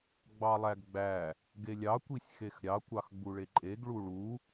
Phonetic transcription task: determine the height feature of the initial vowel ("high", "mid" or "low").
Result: low